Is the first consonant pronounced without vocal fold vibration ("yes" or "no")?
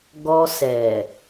no